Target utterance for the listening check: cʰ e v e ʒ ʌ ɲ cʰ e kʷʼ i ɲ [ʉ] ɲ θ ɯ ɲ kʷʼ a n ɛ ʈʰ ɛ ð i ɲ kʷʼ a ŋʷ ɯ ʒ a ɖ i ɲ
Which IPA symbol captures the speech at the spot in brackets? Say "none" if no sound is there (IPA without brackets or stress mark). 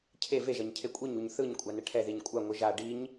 u